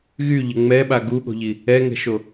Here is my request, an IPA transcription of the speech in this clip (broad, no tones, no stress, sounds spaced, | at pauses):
ɣ y ʎ ə ŋ͡m ɛ ɓ a ɡ u ɠ o̤ ʎ i | ɛ ŋ ɛ̤ ʃ o